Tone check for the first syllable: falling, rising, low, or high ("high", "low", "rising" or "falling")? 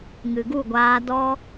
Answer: low